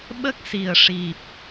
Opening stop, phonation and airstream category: implosive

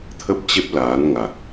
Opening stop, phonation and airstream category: aspirated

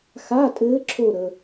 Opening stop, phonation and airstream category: ejective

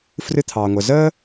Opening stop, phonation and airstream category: aspirated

